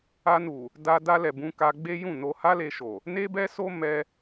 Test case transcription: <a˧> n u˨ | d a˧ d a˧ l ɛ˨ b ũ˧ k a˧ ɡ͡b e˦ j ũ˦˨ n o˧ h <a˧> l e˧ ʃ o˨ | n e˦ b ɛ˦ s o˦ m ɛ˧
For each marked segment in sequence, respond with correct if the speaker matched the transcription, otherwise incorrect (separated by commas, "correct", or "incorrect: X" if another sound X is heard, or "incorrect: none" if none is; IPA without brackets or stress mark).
correct, incorrect: a˦